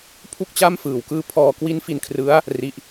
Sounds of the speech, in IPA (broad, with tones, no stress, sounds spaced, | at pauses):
pʰ u˥˩ k̚ t͡ɕ a˥˩ m f ɯː˨˩ w k ɯː˧ pʰ ɔː˧ k w i˦˥ n f i˧ n kʰ r ɯ˦˥ a̯ | r i˦˥ ʔ